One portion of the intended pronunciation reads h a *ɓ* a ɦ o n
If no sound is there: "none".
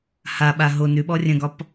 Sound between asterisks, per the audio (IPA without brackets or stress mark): ɓ